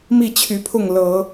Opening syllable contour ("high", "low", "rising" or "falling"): falling